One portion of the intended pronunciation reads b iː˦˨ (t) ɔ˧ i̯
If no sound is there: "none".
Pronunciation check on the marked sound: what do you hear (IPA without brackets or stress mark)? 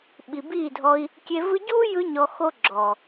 dʱ